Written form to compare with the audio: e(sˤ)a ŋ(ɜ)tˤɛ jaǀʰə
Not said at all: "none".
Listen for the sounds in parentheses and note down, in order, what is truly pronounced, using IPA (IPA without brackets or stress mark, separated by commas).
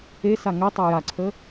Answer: s, ɛ